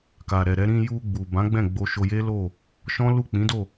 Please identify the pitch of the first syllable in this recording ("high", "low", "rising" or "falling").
low